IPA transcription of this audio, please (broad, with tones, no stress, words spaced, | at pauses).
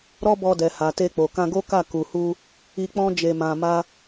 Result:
ɾɔ˦bɔ˧dɛ˨ ha˨te˧k͡po˨ kã˧ɡo˦ka˦˨ ku˨hu˧ | i˧k͡pɔ̃˦ d͡ʒe˧mã˧ma˦